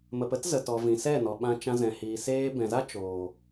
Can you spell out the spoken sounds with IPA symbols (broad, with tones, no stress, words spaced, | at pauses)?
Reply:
mə˨pə˦tzə˨ tɔ˨vĩ˨sɛ˦˨ nɔ˨ɓã˧ t͡ʃã˧zɛ̃˨hiː˨ seː˧bɛ̃˨za˦ t͡ʃoː˨